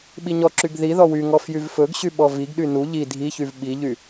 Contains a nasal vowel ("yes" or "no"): no